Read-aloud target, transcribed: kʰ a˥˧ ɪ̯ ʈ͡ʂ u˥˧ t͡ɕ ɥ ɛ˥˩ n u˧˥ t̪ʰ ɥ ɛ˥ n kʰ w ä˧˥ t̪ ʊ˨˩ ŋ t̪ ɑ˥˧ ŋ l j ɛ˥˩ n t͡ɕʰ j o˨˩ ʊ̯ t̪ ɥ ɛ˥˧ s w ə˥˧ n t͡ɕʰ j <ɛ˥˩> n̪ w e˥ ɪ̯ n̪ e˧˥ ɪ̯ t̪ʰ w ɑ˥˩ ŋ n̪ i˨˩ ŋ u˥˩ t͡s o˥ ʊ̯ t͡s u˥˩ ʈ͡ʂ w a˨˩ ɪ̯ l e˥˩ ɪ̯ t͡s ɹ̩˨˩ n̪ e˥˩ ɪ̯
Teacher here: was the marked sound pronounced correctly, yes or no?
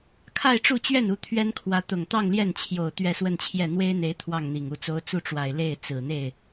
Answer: yes